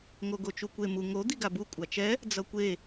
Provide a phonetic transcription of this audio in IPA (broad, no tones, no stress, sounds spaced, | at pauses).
ŋ o ɡ o t͡ʃ u kʷ e m u ŋ o d̪ i ɡ a b u kʷʼ a t͡ʃ ɛ | d͡z ʌ kʷ e